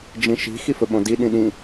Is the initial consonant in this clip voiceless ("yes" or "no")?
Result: no